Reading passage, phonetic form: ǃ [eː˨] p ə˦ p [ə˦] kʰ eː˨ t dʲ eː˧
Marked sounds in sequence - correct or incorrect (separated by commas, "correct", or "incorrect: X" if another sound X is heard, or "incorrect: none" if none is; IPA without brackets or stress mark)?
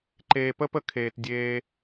correct, incorrect: ə˧